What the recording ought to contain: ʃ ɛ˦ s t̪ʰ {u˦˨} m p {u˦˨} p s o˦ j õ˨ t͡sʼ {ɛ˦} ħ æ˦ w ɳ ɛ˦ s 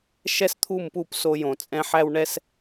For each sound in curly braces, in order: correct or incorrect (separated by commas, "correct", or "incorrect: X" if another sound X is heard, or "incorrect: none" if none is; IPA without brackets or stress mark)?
correct, correct, incorrect: ɛ̃˦